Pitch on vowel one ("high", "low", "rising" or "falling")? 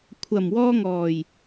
low